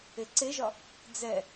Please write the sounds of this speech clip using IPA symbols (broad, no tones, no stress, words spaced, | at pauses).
eǀeʒɒ | d͡zɛ